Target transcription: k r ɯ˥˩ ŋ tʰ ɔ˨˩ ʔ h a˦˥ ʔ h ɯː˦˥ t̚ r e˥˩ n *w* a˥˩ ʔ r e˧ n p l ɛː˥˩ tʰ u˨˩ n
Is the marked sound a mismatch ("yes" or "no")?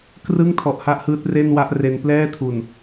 no